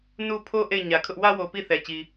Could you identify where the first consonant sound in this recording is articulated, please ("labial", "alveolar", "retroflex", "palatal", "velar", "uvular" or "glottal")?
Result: alveolar